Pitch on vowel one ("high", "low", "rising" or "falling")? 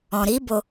low